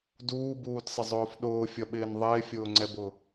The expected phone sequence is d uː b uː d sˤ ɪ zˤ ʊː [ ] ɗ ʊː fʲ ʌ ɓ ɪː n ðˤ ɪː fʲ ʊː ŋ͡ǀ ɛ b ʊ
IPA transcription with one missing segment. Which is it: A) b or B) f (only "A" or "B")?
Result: B